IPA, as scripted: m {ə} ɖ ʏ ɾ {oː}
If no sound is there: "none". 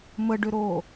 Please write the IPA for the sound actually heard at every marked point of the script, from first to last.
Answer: ə, oː

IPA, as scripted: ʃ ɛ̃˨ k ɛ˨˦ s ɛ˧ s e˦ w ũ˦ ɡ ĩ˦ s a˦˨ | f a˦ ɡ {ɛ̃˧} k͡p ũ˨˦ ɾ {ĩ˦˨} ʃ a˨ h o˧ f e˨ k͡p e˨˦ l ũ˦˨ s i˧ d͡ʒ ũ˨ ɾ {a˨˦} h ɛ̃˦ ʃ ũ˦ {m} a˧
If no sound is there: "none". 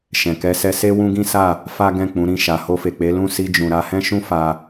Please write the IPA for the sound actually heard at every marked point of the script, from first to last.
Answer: ɛ̃˦˨, ĩ˦˨, a˨˦, f

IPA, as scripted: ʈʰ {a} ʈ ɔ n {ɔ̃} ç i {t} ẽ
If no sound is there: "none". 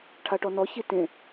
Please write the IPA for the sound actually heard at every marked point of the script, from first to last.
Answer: a, ɔ, t

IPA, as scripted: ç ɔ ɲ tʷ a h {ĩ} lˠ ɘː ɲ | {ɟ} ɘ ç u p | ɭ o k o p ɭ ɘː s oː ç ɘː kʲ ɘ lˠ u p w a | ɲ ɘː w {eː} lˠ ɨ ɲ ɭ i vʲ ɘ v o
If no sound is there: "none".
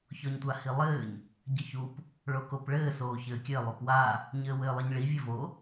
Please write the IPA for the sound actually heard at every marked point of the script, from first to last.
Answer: i, ɟ, ɘː

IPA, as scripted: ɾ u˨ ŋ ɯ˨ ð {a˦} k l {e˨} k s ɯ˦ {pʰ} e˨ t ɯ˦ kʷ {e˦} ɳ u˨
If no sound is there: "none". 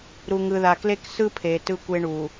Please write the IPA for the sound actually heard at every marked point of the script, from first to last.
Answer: a˨, e˦, pʰ, e˦

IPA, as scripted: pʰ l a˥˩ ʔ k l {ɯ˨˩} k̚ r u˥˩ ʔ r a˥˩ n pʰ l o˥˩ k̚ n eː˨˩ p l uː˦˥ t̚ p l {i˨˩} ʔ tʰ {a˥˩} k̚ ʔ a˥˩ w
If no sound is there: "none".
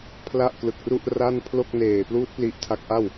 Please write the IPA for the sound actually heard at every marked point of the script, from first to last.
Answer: ɯ˨˩, i˦˥, a˦˥

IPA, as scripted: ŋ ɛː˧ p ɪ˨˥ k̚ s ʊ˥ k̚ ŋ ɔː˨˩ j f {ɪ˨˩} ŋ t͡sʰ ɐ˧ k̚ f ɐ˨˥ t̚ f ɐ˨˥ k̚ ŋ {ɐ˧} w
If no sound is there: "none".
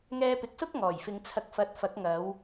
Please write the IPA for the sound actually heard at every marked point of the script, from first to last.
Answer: ɪ˨˧, ɐ˨˧

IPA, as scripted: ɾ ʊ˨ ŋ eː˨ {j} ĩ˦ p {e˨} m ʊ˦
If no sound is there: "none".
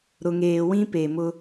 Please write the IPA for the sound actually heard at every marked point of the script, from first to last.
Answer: w, e˨

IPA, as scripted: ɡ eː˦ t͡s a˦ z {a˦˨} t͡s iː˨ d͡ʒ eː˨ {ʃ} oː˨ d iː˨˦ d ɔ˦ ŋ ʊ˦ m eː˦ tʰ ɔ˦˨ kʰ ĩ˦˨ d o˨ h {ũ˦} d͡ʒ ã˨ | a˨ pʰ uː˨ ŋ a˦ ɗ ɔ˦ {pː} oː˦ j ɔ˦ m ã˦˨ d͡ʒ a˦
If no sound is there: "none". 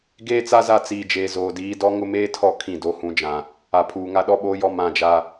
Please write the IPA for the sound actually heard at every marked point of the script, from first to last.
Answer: a˦˨, z, ũ˨, ɓ

